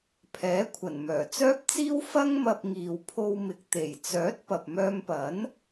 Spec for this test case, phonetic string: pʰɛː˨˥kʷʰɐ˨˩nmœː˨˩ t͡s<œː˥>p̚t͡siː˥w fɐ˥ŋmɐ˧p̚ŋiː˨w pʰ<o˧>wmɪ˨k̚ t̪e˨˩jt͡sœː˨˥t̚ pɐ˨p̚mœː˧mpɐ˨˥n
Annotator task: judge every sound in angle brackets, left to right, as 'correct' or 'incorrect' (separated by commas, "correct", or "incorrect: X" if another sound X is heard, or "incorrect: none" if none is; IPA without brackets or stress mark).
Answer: correct, correct